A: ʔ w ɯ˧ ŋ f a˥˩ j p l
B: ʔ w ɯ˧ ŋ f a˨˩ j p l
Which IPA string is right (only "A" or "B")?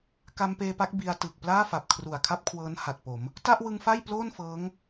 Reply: A